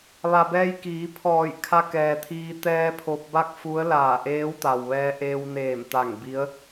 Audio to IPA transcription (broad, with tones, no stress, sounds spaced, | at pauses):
ʋ a˩ b ɛː˧ j k iː˩˧ pʰ ɔː˧˩ j kʰ a˧ k ɛː˩ t̪ʰ iː˧ t̪ ɛː˧ pʰ o˧ p̚ b a˥˨ k̚ f u˧˥ ə̯ l aː˧˩ ʔ eː˧˥ w t̪ a˩ w ʋ ɛː˧ ʔ eː˧ w n eː˧˩ m t̪ a˧˩ ŋ b i˧˥ ə̯